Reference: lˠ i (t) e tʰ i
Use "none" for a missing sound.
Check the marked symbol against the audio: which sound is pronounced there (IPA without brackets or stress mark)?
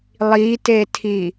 t